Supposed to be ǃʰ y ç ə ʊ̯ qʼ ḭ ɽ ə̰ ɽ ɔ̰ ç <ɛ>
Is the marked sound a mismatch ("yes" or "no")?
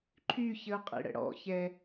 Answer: no